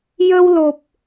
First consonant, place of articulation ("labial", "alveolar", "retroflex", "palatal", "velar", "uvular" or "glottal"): palatal